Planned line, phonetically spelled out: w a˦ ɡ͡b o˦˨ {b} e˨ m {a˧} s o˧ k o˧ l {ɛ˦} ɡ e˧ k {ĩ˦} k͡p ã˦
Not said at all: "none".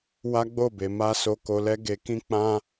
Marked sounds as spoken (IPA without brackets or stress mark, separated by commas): b, a˧, ɛ˦, ĩ˦